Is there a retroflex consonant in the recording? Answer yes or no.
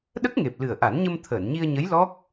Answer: no